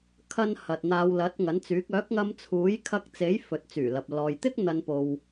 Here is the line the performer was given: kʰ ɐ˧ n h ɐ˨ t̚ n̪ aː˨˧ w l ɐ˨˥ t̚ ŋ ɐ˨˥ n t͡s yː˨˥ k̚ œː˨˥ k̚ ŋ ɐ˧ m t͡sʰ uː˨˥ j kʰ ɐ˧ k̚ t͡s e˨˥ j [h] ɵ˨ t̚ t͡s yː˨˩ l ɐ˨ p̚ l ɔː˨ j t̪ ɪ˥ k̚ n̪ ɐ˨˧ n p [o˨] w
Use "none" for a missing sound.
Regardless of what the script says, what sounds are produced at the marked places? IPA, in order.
f, o˨

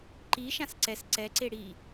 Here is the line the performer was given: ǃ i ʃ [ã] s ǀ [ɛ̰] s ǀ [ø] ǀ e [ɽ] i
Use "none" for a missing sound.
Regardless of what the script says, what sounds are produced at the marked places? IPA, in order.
ã, ɛ, ɛ, ɽ

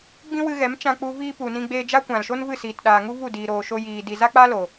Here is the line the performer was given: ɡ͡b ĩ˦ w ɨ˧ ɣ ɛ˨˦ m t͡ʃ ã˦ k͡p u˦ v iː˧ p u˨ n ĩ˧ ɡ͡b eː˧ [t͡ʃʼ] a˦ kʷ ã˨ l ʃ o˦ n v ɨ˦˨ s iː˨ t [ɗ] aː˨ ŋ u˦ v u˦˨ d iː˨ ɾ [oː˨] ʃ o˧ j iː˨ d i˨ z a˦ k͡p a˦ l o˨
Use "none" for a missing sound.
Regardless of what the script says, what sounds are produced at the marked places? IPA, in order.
d͡ʒ, ɗ, oː˨

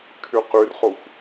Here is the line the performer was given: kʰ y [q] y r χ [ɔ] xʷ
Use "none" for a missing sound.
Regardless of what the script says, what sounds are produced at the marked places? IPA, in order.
q, o

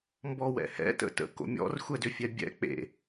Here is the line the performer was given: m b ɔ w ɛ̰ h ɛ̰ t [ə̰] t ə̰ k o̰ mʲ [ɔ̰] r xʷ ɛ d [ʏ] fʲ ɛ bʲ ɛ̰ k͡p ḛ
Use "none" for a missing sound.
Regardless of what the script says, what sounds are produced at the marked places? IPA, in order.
ə̰, ɔ̰, ʏ

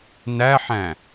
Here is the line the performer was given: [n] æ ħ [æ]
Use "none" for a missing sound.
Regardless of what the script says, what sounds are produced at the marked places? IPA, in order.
n, æ̃

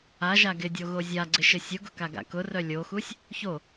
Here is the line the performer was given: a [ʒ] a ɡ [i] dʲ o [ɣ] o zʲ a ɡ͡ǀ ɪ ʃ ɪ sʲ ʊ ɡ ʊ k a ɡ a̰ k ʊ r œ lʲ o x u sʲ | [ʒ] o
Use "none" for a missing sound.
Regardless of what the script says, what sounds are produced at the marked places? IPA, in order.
ʒ, ɪ, ɣ, ç

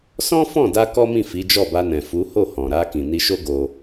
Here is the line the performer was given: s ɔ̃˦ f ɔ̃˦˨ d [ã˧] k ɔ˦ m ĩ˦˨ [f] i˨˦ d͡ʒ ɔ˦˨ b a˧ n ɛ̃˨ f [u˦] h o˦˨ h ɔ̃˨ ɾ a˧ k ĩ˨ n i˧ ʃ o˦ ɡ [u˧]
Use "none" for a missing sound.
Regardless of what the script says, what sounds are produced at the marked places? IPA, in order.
a˧, f, u˨˦, o˧

